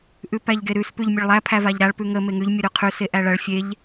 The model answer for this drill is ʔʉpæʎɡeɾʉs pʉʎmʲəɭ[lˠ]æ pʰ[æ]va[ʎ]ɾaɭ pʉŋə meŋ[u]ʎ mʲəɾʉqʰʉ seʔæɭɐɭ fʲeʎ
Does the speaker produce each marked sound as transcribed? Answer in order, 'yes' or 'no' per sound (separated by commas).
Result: yes, yes, yes, no